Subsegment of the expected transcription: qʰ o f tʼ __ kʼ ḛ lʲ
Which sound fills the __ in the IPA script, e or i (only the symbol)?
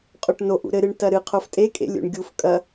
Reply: e